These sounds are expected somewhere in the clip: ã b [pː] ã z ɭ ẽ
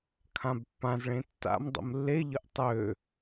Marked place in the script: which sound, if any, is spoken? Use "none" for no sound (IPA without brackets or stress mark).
pː